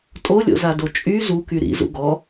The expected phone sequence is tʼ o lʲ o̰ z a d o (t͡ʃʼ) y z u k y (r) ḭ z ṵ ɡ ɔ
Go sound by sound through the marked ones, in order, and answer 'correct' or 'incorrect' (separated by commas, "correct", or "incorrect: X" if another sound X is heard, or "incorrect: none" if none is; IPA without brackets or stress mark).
correct, incorrect: ɾ